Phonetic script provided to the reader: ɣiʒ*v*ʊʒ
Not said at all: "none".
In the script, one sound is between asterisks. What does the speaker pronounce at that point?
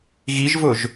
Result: v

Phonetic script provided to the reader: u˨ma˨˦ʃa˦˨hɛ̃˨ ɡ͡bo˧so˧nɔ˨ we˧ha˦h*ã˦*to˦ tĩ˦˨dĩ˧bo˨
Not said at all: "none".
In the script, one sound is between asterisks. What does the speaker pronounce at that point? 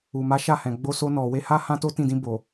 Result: ã˦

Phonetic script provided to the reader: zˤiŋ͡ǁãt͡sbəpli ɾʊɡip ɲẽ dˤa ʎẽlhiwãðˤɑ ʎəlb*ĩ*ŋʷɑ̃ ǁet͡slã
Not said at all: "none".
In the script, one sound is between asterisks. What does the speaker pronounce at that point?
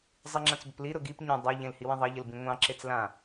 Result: ĩ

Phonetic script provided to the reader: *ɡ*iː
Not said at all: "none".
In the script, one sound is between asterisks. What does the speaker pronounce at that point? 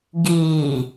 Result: ɡ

